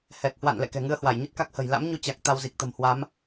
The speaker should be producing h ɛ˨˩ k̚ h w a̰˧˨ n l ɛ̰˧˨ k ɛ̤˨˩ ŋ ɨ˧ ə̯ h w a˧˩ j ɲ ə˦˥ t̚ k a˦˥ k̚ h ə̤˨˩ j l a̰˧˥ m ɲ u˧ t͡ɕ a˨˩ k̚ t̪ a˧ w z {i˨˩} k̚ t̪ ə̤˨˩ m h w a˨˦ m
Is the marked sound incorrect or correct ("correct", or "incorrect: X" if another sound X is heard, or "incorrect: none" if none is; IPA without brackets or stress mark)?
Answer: correct